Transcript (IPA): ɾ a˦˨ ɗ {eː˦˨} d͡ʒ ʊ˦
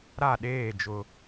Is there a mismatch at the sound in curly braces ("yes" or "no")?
no